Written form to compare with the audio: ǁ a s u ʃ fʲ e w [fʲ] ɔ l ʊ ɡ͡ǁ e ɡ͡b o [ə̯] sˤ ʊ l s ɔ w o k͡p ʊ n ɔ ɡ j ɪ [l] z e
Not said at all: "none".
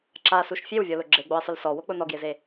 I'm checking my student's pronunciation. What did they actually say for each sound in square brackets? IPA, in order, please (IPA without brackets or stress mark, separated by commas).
vʲ, ɪ̯, none